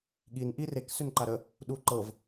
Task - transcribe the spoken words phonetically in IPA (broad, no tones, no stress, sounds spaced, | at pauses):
ɠ i n ʔ i r e k s ʏ n ǃ a ɾ ə | ɗ u ǃ ɤ v